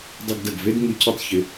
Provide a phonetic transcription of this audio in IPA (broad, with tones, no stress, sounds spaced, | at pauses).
dˤ ɪ˧ ɡ d ɐ˨ ɡ v e˦ d ŋ ʉ˧ cʰ ɯ˦ tˤ ç ɪ˧